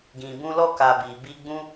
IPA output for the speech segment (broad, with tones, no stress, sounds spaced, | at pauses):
ɡ ĩ˨ b ũ˧ l ɔ˦ k a˧ b i˨ b i˧ ɡ͡b ũ˦